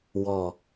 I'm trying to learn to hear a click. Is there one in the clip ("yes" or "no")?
no